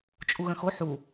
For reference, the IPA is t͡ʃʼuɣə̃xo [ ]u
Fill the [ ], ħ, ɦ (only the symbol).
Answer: ħ